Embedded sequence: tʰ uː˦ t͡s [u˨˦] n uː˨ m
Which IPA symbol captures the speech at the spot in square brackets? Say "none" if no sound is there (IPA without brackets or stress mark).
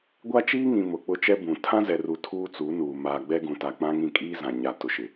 u˨˦